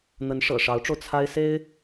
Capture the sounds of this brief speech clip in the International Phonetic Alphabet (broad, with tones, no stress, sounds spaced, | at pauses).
n̪ ə˧˥ n ʂ ɤ̰˨˩ ʂ ɑ˧˥ ʊ̯ ʈ͡ʂ o˧ ʊ̯ t͡sʰ a˥ ɪ̯ s e˥ ɪ̯